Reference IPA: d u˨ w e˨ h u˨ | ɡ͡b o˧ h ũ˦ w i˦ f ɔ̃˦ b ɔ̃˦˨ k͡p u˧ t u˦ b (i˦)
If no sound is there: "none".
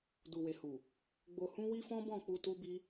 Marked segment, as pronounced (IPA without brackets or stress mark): i˦